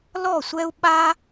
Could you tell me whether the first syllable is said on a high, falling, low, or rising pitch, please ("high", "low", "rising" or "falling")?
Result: falling